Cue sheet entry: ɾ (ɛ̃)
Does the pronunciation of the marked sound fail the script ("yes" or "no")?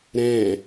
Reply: no